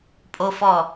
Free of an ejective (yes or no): no